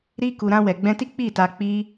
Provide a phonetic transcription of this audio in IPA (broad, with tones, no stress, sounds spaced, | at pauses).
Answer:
ɾ i˦ k u˧ ɾ ã˧ w ɛ˨ ɡ͡b ɛ̃˧ t i˦ k͡p i˦˨ t a˧ k͡p i˦